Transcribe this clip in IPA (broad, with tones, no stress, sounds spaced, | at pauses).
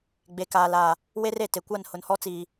ɡ͡b e˨ k aː˨ l aː˨ | w e˦ r e˨ t e˨ kʷ a˦˨ n h ʊ˨ n h ɔ˦ t͡s iː˨